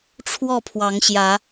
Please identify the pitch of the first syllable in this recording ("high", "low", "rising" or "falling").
falling